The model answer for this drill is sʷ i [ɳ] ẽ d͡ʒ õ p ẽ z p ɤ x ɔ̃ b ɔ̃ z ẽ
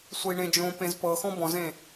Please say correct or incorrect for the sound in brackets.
correct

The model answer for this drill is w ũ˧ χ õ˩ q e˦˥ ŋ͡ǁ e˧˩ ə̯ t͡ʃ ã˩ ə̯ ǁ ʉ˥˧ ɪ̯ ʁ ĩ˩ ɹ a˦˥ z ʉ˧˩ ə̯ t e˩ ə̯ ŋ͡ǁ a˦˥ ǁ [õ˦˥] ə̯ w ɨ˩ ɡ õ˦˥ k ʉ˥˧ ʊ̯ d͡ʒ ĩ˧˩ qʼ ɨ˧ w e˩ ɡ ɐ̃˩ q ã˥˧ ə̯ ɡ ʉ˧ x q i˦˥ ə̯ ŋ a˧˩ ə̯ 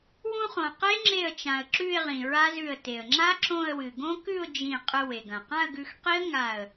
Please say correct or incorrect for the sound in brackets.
incorrect: õ˥˧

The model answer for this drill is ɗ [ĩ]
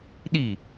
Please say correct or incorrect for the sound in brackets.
incorrect: i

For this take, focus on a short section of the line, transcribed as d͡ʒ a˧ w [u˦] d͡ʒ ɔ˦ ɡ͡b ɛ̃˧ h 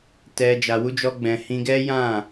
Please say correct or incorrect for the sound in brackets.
correct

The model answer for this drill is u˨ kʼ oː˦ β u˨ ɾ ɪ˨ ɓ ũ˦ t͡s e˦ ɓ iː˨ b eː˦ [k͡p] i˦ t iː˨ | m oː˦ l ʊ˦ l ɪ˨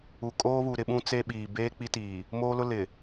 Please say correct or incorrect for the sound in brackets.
correct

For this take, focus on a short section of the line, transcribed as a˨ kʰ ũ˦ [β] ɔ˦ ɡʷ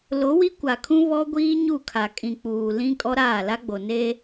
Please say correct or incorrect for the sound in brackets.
correct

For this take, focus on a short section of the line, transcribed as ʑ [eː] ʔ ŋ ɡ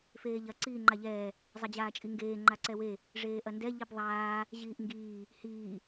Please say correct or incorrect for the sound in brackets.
incorrect: iː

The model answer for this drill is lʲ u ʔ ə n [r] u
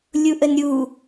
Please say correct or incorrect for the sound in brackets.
incorrect: ɾʲ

